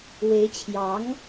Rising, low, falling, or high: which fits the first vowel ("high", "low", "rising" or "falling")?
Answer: rising